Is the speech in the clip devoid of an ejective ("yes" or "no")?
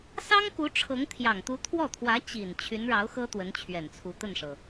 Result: yes